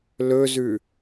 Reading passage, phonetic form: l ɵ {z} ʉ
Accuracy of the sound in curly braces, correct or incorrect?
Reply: correct